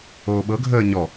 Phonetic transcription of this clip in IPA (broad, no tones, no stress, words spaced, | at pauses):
oːɓɤ ɡʱəːɲɔ